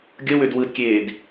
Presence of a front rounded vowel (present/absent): present